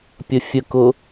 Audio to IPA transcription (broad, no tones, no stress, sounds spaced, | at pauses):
pʲ ə fʲ ə k ʊ